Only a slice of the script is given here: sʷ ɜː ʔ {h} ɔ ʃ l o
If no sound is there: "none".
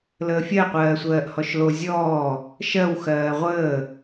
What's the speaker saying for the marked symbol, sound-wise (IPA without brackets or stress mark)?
h